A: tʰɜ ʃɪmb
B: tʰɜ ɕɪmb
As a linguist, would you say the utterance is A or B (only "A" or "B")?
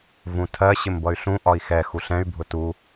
B